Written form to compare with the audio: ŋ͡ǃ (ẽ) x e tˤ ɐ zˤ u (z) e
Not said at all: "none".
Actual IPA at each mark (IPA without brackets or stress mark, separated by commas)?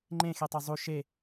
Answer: ẽ, ʃ